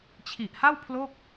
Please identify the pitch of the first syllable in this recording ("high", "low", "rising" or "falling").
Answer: low